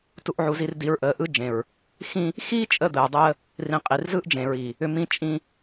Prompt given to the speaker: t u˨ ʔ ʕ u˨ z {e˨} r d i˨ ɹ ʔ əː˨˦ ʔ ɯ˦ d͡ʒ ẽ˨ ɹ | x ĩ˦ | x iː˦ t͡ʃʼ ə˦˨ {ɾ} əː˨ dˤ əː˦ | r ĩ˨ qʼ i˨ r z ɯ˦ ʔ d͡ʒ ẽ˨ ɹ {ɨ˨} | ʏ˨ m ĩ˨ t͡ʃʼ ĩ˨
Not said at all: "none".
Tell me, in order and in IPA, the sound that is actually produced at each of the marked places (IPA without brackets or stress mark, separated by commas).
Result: i˨, d̪, i˨